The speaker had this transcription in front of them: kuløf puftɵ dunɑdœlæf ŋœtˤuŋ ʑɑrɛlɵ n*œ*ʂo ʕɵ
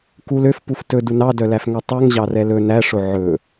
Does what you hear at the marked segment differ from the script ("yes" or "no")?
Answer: yes